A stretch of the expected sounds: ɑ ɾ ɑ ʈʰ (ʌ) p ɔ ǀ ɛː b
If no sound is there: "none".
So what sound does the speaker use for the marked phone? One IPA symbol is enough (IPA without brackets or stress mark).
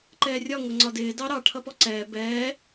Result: ʌ